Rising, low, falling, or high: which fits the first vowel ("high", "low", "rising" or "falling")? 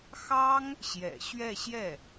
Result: high